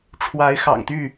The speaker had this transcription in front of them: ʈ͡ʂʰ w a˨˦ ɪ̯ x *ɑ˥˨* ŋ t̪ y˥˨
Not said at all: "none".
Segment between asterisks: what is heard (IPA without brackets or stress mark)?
ɑ̰˨˩